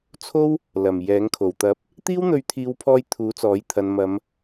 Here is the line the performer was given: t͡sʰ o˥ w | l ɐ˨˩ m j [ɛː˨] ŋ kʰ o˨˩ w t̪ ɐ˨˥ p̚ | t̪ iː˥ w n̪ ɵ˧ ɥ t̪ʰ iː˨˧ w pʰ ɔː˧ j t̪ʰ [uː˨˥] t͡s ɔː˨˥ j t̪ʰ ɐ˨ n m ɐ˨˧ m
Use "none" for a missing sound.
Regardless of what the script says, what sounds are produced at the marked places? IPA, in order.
ɛː˨˥, uː˨˥

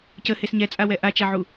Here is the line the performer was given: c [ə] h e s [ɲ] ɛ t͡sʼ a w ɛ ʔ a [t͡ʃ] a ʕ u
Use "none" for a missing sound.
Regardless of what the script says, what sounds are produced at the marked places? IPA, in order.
ə, ɲ, t͡ʃ

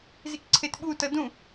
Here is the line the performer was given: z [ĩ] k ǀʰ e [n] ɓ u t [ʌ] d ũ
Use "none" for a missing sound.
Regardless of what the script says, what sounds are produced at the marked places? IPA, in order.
i, t, ʌ

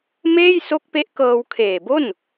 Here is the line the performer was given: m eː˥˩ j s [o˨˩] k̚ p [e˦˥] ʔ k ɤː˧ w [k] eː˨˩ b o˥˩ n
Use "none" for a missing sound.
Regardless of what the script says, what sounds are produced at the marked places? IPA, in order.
o˦˥, e˦˥, kʰ

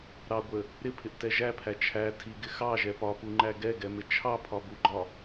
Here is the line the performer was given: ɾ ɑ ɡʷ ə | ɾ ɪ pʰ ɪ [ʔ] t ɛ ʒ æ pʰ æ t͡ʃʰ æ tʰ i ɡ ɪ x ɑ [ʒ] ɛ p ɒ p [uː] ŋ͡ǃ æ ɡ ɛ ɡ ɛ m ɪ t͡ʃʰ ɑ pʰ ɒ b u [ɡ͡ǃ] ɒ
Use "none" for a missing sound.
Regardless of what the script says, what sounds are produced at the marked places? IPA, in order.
ʔ, ʒ, u, ɡ͡ǃ

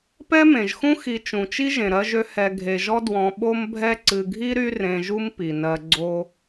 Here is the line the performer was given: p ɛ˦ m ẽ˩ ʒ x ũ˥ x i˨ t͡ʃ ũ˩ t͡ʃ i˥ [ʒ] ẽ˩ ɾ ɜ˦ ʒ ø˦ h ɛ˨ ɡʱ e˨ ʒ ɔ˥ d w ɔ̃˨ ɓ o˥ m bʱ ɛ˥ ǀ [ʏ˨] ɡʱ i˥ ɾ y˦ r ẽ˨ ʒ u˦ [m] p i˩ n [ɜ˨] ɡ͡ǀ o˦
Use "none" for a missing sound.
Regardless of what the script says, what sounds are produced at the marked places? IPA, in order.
ʒ, ɨ˨, m, ɜ˨

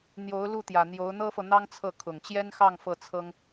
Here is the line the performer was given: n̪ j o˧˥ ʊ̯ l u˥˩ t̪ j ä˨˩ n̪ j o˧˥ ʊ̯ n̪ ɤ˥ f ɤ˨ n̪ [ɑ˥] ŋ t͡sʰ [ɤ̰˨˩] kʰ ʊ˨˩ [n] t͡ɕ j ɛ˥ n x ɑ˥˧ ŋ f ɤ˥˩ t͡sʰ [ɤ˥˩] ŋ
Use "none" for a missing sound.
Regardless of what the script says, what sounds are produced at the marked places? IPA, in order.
ɑ˥, ɤ˥˩, ŋ, ɤ˥

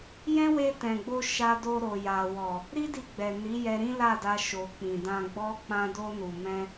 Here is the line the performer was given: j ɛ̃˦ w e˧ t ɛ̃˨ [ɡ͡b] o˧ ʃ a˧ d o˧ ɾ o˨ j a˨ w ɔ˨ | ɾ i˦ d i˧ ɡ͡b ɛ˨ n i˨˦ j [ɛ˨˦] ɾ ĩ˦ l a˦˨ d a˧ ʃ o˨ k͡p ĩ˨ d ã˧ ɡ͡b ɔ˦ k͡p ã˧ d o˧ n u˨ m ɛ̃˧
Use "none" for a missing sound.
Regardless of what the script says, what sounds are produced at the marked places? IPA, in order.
ɡ͡b, ɛ˧

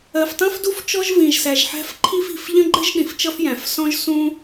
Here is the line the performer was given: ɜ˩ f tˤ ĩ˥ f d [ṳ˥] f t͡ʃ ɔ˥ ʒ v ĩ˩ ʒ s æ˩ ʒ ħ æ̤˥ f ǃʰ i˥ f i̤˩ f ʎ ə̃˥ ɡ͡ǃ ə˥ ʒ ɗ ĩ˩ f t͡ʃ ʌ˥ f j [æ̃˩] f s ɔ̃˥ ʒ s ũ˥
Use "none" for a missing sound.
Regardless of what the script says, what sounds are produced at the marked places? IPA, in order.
u˥, æ̃˩

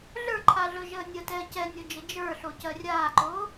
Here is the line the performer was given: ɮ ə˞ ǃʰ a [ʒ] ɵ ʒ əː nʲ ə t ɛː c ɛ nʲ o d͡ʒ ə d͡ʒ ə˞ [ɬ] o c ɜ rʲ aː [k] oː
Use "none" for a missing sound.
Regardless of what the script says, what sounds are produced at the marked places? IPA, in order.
ɮ, ɬ, ǃ

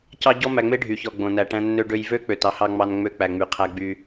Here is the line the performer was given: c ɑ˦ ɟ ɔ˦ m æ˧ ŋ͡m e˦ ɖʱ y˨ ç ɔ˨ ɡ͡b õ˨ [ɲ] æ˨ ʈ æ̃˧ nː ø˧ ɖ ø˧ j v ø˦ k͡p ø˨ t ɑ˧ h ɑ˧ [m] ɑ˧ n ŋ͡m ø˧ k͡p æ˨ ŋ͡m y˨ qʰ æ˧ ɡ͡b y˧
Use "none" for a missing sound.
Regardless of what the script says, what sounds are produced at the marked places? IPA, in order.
n, ŋ͡m

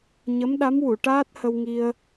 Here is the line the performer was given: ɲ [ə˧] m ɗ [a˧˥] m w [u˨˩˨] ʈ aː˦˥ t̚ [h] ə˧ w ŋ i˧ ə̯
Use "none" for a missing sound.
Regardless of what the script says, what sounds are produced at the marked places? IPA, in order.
ə˧˥, a˧˥, u˨˩˨, h

